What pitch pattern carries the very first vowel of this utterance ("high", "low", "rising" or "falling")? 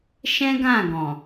high